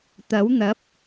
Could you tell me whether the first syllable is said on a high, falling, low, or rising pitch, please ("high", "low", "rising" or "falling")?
rising